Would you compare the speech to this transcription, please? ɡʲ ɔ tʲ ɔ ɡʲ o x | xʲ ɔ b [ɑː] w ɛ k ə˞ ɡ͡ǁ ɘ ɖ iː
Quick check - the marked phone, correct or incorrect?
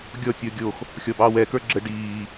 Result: correct